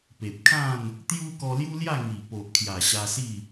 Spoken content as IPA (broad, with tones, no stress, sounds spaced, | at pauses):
p e˨ p̚ kʰ ã˥˧ n | t̪ j u˦ k ɔ˧ l j u˦ l j a˥˧ ŋ i˨˩ p o˨ ʔ kʰ j a˨˩ ɕ a˧ s i˥˧